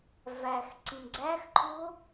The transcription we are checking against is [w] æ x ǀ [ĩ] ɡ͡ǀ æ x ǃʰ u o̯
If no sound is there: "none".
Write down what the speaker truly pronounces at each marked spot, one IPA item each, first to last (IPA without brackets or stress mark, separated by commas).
v, ĩ